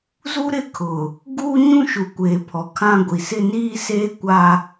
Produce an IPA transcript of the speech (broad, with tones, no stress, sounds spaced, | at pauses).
z u˦ ɾ ɪ˦ kʰ ʊ˨ | ɡ uː˦ ɲ ũ˦ ʃ u˨ kʷ eː˨ pʰ ɔ˨ kʰ ã˦ ɡʷ i˨ s ɪ˦ n iː˦ s eː˦ kʷ a˦